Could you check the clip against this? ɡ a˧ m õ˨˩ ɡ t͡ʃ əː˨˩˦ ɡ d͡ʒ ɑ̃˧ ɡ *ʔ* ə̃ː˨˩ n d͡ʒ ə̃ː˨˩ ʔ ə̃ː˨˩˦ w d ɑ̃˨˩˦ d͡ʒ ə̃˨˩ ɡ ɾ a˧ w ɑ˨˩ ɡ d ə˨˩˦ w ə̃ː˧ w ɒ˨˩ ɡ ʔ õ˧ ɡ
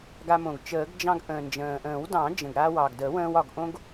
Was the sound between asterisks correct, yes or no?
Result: yes